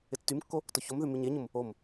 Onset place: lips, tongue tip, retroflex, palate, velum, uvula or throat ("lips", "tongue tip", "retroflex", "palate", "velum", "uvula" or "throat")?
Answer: tongue tip